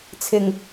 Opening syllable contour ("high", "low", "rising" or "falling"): low